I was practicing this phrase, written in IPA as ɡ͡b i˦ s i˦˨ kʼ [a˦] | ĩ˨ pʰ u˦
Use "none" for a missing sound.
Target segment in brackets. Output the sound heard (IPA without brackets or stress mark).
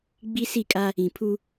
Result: a˦